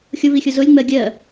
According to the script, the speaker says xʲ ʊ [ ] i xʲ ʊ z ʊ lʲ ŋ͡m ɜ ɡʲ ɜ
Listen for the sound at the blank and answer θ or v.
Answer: v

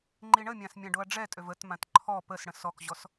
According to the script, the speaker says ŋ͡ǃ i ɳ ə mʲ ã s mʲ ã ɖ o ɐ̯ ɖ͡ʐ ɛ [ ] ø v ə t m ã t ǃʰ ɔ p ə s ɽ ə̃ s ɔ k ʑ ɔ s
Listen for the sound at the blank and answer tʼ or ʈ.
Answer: tʼ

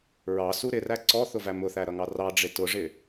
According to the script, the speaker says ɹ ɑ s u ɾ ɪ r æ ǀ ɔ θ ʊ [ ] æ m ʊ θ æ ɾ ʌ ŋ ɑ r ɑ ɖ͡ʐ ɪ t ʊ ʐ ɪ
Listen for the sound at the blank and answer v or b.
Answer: v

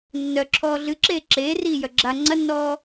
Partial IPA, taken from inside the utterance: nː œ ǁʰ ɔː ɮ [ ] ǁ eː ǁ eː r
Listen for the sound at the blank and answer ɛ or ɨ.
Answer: ɨ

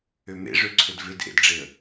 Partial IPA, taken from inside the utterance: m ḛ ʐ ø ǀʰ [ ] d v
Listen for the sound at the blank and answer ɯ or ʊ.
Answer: ʊ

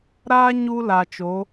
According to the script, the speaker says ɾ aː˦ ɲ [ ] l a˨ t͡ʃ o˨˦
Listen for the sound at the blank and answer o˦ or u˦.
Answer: u˦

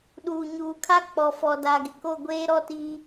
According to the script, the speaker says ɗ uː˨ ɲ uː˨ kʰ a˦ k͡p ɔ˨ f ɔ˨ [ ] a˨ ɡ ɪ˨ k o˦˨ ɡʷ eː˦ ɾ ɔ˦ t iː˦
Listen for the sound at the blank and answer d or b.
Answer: d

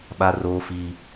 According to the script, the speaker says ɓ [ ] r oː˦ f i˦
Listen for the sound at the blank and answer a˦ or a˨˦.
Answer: a˦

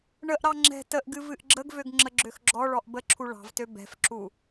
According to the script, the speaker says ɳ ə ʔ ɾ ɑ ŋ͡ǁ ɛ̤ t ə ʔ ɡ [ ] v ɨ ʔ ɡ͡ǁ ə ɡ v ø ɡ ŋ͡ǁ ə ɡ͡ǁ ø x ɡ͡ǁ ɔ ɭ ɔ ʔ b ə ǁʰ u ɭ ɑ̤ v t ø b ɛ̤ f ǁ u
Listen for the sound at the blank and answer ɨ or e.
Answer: ɨ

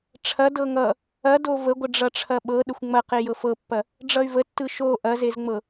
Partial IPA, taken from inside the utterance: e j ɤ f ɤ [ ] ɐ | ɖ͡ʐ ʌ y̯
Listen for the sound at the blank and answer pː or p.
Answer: pː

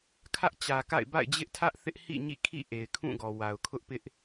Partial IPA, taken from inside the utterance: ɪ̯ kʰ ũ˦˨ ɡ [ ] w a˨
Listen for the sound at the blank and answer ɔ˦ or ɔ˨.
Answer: ɔ˨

